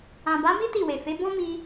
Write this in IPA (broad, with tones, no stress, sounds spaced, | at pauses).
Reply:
ã˨ b a˨˦ m i˦ t i˦˨ w e˨ f e˨˦ b ɔ̃˦ m i˧